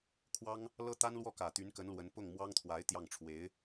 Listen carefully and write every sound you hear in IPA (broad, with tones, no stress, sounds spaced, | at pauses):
kʰ w ɑ˥ ŋ | l ɤ˥ t̪ a˥ n l w ɔ˥˩ k ä˨˩ t̪ y˧˥ n k ə˧˥ n l w ə˧˥ n p ʊ˥˩ ŋ m w ɑ˥ ŋ t̪ʰ w a˧˥ ɪ̯ t̪ j ɑ˥˩ ŋ ʈ͡ʂʰ w e˧˥ ɪ̯